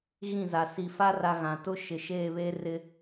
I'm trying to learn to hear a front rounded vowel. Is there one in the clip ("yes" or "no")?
no